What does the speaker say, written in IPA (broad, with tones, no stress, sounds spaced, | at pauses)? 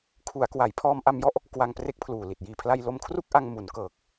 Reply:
kʰ u˩˦ a̯ k w a˩˦ j pʰ ɔː˧ m ʔ a˧ m j ɔ˥˩ ʔ | k w a˧ ŋ p r e˦˥ k̚ pʰ l uː˨˩ l i˨˩ t̚ j iː˨˩ pʰ l a˧ j l o˧ m kʰ r u˥˩ k̚ ʔ a˧ ŋ m u˩˦ n k ɤː˨˩ k̚